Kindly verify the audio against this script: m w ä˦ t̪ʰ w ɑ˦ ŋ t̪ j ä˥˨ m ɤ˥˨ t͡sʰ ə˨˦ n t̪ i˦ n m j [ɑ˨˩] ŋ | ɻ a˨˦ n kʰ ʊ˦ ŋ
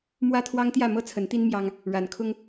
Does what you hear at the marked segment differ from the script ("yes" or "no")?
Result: yes